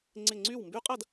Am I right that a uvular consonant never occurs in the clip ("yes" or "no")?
no